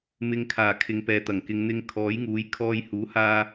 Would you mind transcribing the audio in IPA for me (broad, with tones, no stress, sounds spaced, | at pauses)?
m ɪ˨ ŋ kʰ aː˨˩ kʰ ɪ˨ ŋ p ɛː˨ t̪ ɐ˨˩ ŋ k ɪ˨˧ ŋ n̪ ɪ˧ ŋ kʰ ɔː˨˥ j ŋ uː˨˥ j kʰ ɔː˧ j h uː˨˥ h aː˧